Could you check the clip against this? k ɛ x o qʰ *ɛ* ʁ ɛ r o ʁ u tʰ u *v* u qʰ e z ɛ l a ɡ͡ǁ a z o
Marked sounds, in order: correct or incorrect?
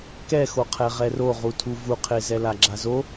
correct, correct

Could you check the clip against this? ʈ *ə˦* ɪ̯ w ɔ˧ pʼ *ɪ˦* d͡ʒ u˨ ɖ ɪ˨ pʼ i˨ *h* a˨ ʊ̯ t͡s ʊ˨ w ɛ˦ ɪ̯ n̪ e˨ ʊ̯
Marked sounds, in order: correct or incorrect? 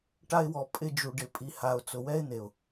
incorrect: a˦, incorrect: ɪ˧, correct

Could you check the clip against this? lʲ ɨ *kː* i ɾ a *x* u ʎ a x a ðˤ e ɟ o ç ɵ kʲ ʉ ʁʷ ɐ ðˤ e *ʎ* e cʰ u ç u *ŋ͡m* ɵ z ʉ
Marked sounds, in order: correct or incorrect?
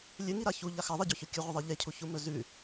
incorrect: ŋ, incorrect: ç, correct, incorrect: m

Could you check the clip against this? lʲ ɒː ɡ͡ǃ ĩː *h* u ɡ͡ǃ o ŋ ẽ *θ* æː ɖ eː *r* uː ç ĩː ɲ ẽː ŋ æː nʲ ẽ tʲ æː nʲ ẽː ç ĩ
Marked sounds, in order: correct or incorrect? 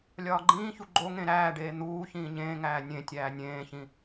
incorrect: ç, incorrect: ɾ, incorrect: n̪

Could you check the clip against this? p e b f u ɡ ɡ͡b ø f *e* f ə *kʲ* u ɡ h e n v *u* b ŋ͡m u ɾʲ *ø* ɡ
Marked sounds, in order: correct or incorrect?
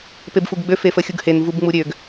correct, incorrect: xʲ, correct, correct

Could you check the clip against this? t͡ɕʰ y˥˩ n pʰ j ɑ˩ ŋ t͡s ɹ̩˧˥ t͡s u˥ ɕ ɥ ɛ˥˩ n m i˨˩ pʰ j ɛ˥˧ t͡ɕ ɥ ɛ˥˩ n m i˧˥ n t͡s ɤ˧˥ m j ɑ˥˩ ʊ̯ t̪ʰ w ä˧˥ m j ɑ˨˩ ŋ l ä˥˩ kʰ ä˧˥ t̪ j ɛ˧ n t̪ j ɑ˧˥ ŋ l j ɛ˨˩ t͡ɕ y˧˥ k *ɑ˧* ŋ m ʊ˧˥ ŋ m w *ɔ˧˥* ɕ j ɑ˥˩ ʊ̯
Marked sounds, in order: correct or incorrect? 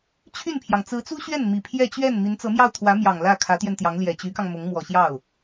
correct, incorrect: ɔ˨˩

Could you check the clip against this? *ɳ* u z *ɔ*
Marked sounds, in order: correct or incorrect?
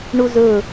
correct, incorrect: ɵ

